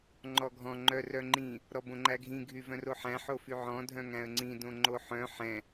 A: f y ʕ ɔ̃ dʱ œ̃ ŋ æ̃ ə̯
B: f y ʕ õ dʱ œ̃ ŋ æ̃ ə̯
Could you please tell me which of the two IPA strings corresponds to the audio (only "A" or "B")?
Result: A